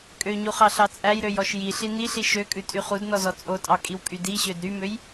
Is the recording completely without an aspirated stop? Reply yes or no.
yes